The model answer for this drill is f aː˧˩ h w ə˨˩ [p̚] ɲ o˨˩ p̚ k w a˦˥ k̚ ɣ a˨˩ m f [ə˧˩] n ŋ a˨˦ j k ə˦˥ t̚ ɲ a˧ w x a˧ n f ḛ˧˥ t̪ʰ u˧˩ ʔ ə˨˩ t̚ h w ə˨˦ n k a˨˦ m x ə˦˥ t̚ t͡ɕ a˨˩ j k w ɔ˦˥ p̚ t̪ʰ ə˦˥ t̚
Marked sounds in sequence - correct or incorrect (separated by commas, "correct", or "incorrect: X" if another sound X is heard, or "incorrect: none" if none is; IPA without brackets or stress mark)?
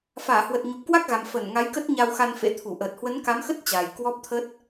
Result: incorrect: t̚, correct